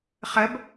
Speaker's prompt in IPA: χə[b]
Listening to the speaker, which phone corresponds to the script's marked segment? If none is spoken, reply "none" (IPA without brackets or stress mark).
b